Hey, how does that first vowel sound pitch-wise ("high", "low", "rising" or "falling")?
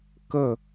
falling